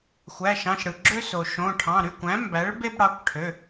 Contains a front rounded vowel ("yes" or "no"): yes